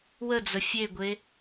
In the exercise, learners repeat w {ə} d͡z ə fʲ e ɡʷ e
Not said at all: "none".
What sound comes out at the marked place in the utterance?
ə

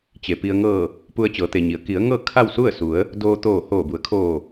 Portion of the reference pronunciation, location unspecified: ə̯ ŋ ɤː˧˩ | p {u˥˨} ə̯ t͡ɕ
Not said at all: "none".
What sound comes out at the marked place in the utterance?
u˧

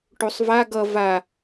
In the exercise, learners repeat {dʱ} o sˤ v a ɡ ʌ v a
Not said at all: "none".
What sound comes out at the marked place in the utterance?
ʈ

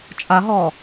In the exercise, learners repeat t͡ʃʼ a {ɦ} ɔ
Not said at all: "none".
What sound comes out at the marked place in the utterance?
ɦ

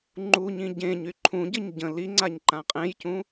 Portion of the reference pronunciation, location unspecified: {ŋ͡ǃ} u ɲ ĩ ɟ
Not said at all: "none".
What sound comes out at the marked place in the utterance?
ŋ͡ǃ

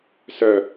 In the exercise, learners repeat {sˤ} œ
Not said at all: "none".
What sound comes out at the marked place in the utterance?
s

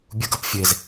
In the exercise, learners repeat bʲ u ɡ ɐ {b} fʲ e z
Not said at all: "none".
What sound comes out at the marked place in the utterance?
p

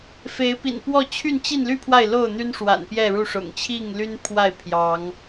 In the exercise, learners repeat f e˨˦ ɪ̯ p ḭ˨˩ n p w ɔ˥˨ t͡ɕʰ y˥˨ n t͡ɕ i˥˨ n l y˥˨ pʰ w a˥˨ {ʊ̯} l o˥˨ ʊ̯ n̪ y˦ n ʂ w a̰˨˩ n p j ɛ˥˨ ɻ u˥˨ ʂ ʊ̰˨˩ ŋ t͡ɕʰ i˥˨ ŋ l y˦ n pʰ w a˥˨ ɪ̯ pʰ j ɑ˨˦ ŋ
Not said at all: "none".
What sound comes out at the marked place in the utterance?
ɪ̯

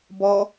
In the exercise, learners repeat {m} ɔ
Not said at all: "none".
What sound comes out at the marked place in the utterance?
b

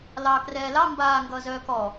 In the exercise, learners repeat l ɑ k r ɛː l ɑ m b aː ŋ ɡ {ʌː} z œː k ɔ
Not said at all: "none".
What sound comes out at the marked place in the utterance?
ʌː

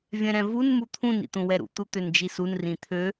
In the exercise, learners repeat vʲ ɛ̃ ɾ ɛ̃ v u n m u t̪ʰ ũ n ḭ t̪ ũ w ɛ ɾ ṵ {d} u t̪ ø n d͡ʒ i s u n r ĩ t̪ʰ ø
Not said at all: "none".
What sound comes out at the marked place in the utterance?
t̪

